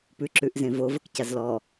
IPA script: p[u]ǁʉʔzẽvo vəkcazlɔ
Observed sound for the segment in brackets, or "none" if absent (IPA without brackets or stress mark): ʉ